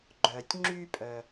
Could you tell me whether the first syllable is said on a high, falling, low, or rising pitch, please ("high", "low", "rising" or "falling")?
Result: low